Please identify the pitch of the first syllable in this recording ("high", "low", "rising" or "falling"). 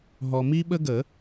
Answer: low